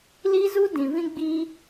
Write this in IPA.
l i˦ z u˦ d ĩ˨ v ĩ˦ ɡ͡b i˦

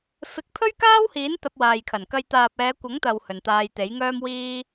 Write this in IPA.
f ɪ˨˥ k̚ pʰ ɵ˥ ɥ k aː˥ w h iː˨˥ n t̪ ɐ˧ p̚ w aː˨ j kʰ ɐ˨˩ n k ɐ˧ j t̪ aː˨ p̚ ɛː˨˧ kʷ ɐ˨˥ ŋ t̪ ɐ˨ w h ɵ˨ n t̪ aː˧ j t̪ e˨˥ j ŋ œː˥ m w iː˥

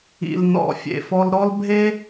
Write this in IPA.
ḭ˩ l n ɔ̰˩ fʲ ḛ˩ f ɔ˧ l ɾ ɔ˥ l bʱ e˥

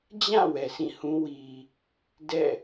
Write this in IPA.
d͡ʑ ã˦˨ w ɛ˨ s ĩ˦˨ h ũ˦ w i˨ | d ɛ̰˦˨

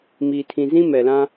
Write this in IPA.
m iː˨ tʰ ĩ˨ z ĩ˦ m ɛ˨ l ã˦

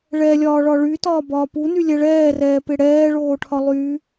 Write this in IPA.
ɭ ɛ lʲ ɒː ɭ ɒ ɭ y t ɒː b ɒː p u n y lʲ ɛ ɭ ɛː r ɛː p ɪ ɽ ɛː ɭ oː ʈʰ ɒ lˠ y

